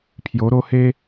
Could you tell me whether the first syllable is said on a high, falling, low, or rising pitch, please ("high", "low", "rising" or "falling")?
rising